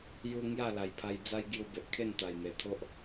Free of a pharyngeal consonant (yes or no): yes